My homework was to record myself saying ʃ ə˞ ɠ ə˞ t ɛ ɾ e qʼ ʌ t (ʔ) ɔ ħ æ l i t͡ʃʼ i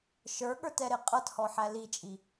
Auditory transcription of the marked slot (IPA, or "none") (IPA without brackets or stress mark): h